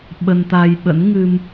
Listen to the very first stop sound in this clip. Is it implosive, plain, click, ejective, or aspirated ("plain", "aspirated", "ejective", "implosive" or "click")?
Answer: implosive